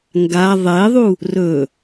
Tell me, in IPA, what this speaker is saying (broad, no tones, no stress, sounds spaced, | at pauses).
ŋ ɡ a ðˤ e ðˤ u | r ɵ